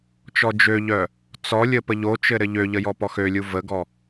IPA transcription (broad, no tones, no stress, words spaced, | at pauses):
t͡ʃɔd͡ʒøʎœ | t͡sɔlʲə pəʎot͡ʃɘ ɾɘʎøʎə jɔpɔxølʲu vəɡɔ